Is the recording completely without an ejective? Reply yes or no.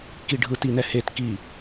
yes